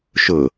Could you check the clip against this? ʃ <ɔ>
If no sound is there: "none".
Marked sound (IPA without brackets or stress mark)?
ʊ